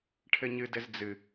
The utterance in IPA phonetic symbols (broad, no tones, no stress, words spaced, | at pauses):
ʈʰɘɲɨdɘz d͡zɨ